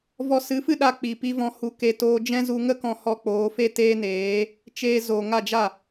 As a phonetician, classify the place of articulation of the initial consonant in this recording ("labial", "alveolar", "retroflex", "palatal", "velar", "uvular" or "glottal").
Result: labial